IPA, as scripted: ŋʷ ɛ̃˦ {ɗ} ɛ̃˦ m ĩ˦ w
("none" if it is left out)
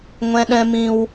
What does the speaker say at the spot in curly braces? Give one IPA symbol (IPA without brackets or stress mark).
ɗ